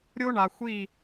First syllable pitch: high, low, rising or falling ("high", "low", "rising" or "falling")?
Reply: high